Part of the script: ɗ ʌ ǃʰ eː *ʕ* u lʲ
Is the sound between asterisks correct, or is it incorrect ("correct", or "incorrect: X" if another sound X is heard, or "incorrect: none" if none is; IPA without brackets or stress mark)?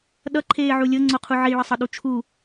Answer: correct